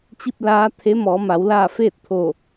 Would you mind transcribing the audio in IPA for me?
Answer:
t͡ɕ i˥˨ p̚ l aː˧˥ t̪ʰ e˧˥ m ɔː˩˧ m a˩˧ w l aː˥˨ f eː˥˨ t̚ t̪ʰ oː˧˩

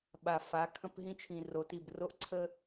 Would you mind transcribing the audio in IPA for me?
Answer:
ɓ a˨ f a˨˦ kʰ ə̃˦ p ɦ ĩ˦ t͡ʃʰ ĩ˨ r o˨ t i˦˨ b r o˦ ʔ ǀʰ ə˦

